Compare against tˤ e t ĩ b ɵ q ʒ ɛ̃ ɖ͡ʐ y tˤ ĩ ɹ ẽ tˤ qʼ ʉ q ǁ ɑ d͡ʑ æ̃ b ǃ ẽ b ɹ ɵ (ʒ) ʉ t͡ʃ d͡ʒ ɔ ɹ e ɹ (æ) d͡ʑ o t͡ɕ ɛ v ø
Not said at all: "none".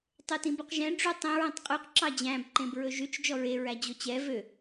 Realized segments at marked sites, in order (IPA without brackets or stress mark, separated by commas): ʒ, æ